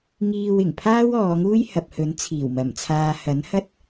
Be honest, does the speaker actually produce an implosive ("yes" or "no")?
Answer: no